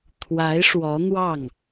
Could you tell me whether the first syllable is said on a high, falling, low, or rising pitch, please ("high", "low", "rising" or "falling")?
rising